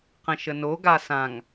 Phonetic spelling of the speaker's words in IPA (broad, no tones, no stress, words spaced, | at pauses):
qə̃ʃəno ɡasãŋ